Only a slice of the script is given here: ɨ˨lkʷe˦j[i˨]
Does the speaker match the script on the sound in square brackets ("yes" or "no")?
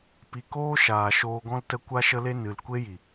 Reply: yes